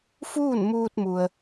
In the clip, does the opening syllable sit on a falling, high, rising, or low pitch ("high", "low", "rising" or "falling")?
falling